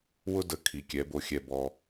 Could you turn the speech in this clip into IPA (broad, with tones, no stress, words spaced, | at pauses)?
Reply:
wʊ˦ də˧kʰi˨kʲɛ˨˦bo˧ xʲɛ˧bɔ˧